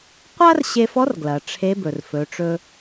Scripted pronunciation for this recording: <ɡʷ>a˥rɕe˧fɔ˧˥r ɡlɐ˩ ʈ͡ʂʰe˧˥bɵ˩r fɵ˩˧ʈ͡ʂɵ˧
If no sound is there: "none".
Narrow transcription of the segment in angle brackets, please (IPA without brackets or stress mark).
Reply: qʷ